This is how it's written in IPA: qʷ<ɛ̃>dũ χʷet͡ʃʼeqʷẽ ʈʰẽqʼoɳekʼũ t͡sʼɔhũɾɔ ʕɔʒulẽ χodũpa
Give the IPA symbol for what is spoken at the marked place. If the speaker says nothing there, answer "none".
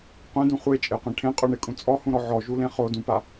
ɛ̃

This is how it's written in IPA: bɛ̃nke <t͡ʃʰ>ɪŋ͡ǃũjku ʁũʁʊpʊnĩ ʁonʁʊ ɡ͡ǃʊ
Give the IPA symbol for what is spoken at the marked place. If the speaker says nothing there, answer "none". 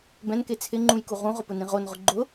t͡sʰ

